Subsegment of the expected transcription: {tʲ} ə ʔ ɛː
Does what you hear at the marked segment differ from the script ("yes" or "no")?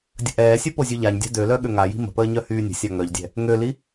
yes